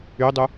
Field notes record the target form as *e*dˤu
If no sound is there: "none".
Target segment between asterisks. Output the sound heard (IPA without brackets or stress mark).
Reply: y